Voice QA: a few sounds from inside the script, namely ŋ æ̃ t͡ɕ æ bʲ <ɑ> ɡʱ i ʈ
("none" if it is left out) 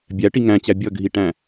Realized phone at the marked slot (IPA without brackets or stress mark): ʌ